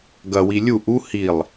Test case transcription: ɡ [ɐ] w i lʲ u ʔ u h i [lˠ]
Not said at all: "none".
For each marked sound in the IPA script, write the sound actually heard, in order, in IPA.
ɐ, lˠ

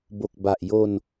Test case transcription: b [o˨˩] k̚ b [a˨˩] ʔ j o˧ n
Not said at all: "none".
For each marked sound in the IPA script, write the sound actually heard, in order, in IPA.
o˨˩, a˨˩

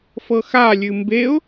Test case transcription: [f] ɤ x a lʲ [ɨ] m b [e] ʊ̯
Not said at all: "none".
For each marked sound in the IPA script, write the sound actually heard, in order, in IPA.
f, ɨ, e

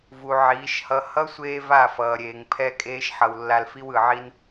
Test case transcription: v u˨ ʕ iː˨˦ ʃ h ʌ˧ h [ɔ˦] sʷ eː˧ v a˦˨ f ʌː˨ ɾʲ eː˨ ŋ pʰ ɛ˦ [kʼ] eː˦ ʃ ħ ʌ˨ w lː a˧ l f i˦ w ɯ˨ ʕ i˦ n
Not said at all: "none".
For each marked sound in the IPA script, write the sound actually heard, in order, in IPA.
ʌ˦, kʼ

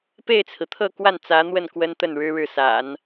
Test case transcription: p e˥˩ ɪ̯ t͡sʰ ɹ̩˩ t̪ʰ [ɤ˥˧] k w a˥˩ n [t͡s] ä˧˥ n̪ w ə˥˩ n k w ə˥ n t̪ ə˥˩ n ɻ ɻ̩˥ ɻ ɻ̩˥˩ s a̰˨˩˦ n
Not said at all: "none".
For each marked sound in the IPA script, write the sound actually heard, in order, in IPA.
ɤ˥˧, t͡s

